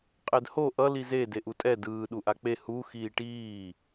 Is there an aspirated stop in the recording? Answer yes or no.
no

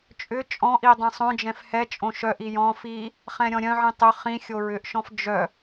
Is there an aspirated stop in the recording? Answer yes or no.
no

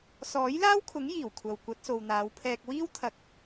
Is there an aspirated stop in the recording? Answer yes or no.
yes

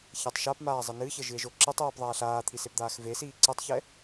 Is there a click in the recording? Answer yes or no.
yes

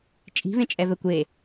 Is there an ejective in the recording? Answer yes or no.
yes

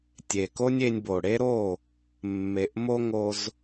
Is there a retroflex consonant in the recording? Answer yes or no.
yes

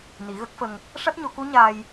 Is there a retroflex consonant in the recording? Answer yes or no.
yes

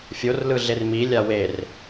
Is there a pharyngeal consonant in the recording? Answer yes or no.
no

